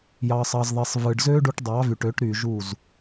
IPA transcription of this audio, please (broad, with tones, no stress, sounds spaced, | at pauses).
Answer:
j ɑ˧ sˤ ɑ˧ z ðˤ e˧ sˤ v ɯ˨ ɖ z ø˦ ɖ u˧ ʈ dˤ ɑ˨˦ v y˨ ʈ ø˨˦ ʈ ɾ y˨ ʒ u˦˨ z